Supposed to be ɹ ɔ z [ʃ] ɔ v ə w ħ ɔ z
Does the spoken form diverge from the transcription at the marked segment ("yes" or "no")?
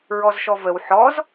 no